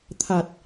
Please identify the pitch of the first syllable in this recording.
low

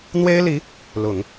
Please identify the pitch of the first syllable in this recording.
high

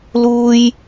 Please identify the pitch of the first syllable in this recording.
high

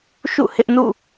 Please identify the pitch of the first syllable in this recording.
falling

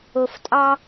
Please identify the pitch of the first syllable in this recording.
low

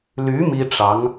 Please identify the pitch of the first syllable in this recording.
rising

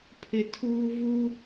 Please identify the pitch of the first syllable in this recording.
low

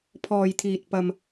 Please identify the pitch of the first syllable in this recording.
low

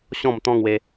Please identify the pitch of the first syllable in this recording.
falling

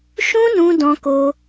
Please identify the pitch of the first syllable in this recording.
high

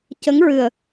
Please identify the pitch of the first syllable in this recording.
rising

